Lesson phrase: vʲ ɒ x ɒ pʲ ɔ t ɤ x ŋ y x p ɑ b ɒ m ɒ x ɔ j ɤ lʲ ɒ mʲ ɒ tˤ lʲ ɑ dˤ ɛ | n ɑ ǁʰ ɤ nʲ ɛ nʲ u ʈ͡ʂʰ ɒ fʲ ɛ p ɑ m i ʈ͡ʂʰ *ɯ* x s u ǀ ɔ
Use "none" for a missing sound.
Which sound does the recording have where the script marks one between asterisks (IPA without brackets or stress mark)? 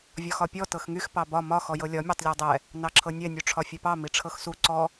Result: ɤ